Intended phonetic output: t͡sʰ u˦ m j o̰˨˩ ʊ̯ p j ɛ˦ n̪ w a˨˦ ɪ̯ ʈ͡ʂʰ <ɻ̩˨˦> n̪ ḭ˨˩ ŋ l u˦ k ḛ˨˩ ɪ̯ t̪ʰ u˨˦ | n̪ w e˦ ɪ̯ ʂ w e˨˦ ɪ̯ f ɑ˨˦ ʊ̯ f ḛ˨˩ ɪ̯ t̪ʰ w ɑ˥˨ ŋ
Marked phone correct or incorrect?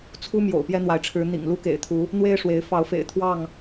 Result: correct